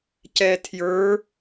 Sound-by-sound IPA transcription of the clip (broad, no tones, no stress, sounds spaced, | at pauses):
c ɛ tʰ j ə˞